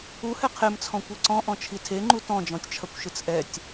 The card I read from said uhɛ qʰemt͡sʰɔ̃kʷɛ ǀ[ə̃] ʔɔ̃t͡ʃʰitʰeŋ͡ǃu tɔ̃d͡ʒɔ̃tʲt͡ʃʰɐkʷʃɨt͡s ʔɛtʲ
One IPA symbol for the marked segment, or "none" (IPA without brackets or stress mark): ɔ̃